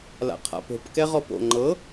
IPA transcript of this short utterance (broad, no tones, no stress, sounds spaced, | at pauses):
l a̰ qʰ a̰ p o̤ p k ɛ ʁ ɔ p o̰ ŋ͡ǃ ɤ